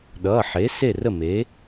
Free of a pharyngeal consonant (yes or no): no